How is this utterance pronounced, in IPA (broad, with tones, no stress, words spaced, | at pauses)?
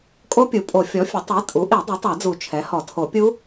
kʼo˦˥pʲu˩˥pʼo˨˩˦ fʲɔ˩˥fʲɘ˩˥ tˤi˩˥ tʼu˩˥ʔi˨˩˦ dˤu˩˥tˤa˨˩˦d͡zu˨˩˦ t͡ʃʰɛ˩˥hɔ˨˩˦tʰo˨˩˦pʲu˦˥